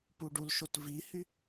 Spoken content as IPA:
p u ɖ u l ʃ o t v i h y

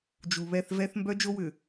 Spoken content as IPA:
d͡ʒ u˨ β ɛ˦˨ θ v ɛ˦ θ m b œ˦ d͡ʒ o˦ w ʏ˨

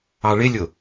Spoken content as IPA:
ɑ ɭ ɪ lʲ ʊ

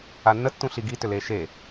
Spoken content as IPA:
a nː ə tː ũ ɬ i ɡ i t ʏ l eː ʃ e

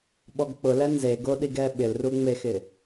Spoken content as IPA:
ɓ ɔ ɡ k͡p ʊ l ɛ n z e ɡ o ɗ i ɡ ɛ ɓ ɪ l r u ŋ͡m e x ɪ

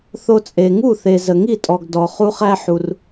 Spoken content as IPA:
θ o˦ t͡sʼ e˨ ŋ u˥˩ θ e˨ z ə˨ ŋ i˥˩ tʼ ɔ˨ ɡ d ɔ˨ χ u˦ χ æ˦ ħ u˨ r

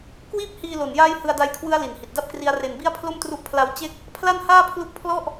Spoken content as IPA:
k w iː˥˩ p̚ h iː˧ l o˨˩ n j aː˦˥ j h ɯ˧ a̯ d a˦˥ j kʰ w ɯ˦˥ a̯ l i˨˩ n h i˨˩ t̚ d a˥˩ p̚ k r i˦˥ a̯ r e˧ n b i˥˩ a̯ pʰ l o˥˩ m t r u˦˥ ʔ pʰ l a˦˥ w t͡ɕ e˥˩ k̚ | pʰ l a˥˩ n h aː˥˩ pʰ l u˦˥ k̚ pʰ l ɔ˥˩ ʔ

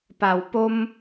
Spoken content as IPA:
p a˨˩ w p o˦ m

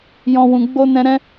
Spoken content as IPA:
j ɔ̃˧ w ũ˧ ɡ͡b o˦ n ɛ̃˦ ɾ ɛ̃˦

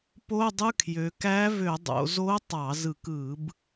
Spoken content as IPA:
p o˧˥˧ dˤ ɯ˧˥˧ kʰ j ø˩˧ k æ˧˥ v ø˧˩˧ dˤ o̰˩˧ z o˧˥ tˤ ɑ˧˩˧ z ɯ˧˩˧ k ɯ˧˩˧ b

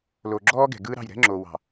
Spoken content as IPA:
l o˨ ɡ͡ǁ ɔː˦ ɡ ɛ̤˨ ɡ ɯː˦ ɾ ɑ̤˦˨ j ɾ ɛ̤˦ ŋ͡ǁ o˨ w ɑ̤˨

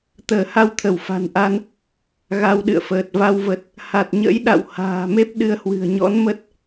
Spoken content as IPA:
t̪ əː˧˩ h a˧ w t̪ʰ ə˧˩ w f a̤˨˩ n ʔ a˧ n | ɣ a˧ w ɗ ɨ̰˧˨ ə̯ f əː˨˩ t̚ v a˧ w v ə˨˩ t̚ | h a˨˩ t̚ ɲ ə̰˧˥ j ɗ a̰˧˨ w h a̤ː˨˩ m e˦˥ p̚ ɗ ɨ˨˦ ə̯ h w ɨ̤˨˩ ə̯ ɲ ɔ̰˧˥ n m ə˦˥ t̚

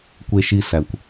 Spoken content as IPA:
kʷ e˦ ʃ i˦ s æ˨ kʷ

